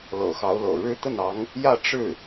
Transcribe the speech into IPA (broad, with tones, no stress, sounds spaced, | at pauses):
l ɤ̰˨˩ x ɑ˧˥ ʊ̯ l ɤ̰˨˩ ɻ ɻ̩˥ t̪ ə˥˩ n ɑ˧˥ ŋ | j ä˥˧ ʈ͡ʂ ɻ̩˥˩